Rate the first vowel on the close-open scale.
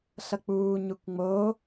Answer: mid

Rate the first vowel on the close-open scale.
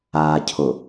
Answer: open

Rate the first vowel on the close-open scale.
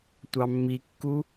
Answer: open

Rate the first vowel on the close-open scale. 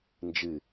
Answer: close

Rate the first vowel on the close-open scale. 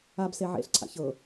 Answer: open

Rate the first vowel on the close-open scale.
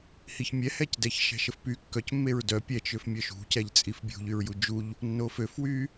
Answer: close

